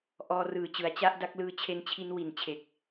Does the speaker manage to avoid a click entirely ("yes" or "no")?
yes